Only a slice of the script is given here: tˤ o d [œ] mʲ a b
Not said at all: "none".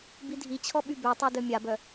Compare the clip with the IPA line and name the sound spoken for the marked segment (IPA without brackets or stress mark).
œ